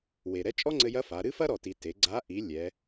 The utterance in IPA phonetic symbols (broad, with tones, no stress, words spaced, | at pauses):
we˩ ɾɛ˧˥t͡ʃʼɔ˥ŋ͡ǀɘ˧jɐ˧˥ fa˩˧ ɾɨ˥fɐ˥ɾɔ˩ti˩ te˩˧ɡ͡ǀa˧˥ ʔi˩˧ lʲɛ˩˧